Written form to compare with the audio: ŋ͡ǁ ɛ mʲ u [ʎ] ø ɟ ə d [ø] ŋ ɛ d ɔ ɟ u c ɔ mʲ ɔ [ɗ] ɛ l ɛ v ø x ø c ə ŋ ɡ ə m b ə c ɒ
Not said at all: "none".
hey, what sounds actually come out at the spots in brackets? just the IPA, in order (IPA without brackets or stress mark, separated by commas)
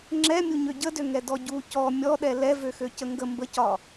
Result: ɲ, ø, ɗ